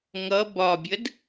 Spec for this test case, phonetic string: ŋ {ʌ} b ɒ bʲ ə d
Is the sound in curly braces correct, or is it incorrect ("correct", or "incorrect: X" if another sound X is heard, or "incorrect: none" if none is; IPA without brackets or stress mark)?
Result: correct